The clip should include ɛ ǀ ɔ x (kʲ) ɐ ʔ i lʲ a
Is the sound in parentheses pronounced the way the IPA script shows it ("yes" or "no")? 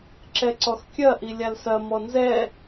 yes